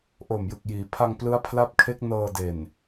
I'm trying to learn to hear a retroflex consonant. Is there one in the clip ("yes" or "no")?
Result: no